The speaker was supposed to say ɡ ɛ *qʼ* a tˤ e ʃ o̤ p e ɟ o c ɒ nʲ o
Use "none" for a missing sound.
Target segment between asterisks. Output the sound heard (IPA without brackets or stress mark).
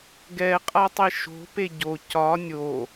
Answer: qʼ